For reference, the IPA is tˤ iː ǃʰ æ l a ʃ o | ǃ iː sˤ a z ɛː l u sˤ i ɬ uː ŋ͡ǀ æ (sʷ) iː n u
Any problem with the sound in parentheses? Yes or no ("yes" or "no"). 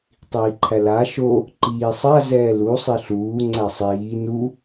yes